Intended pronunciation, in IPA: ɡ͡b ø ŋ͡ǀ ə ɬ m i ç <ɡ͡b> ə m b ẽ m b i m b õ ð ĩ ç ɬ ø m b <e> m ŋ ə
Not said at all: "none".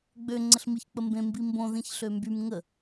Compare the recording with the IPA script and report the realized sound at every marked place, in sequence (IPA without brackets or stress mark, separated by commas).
k͡p, y